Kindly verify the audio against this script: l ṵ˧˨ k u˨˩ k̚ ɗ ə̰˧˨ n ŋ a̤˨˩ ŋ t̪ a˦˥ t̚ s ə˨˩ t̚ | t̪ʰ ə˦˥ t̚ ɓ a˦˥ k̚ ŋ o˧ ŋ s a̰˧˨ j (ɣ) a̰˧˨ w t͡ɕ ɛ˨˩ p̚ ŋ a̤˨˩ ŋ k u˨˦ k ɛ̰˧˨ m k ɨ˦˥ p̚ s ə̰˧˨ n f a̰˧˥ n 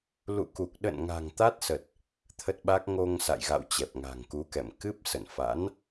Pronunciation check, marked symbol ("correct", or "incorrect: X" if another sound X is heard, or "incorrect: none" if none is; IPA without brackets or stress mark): correct